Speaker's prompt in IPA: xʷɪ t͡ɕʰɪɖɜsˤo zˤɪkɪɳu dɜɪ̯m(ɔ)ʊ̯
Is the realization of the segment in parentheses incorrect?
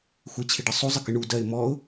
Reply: no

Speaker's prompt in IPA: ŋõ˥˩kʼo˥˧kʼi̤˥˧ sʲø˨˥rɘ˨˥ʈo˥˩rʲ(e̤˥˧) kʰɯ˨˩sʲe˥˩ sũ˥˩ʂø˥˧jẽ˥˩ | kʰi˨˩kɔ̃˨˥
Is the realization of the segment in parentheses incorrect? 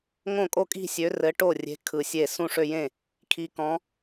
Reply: yes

